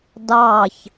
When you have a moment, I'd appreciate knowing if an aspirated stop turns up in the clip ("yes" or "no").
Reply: no